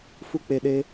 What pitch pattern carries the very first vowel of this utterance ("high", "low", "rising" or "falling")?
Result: high